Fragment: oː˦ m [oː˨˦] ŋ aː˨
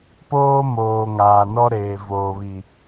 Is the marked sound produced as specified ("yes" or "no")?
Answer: no